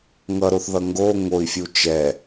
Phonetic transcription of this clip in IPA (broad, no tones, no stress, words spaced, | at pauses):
ŋʌɾoθðʌ ŋɡo ŋoi̯fʲu t͡ʃɛ